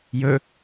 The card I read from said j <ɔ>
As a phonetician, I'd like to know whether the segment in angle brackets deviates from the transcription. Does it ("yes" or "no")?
yes